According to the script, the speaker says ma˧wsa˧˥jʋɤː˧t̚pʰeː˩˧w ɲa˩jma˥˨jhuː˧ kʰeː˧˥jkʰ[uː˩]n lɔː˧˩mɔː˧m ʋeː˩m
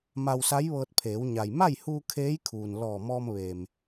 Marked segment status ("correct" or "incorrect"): correct